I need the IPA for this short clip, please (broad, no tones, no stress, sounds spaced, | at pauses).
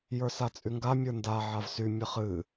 j ə˞ s a t͡sʼ y ŋ ɡ a mʲ ə˞ n d a ʕ a v s y mʲ ə χ ɨ